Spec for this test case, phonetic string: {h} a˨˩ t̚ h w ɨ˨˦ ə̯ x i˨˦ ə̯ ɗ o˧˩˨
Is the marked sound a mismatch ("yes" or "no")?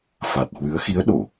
yes